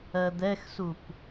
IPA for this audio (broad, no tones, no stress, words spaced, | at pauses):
ɜd̪ɛxsup